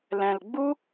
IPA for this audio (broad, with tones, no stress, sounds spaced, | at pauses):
l ɛ̃˨ l ɡ͡b u˦